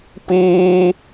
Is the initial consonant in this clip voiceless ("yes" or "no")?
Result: yes